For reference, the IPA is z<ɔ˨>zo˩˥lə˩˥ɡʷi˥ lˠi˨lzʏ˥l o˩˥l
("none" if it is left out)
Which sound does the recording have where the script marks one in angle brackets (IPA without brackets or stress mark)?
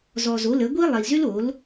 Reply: ɔ˨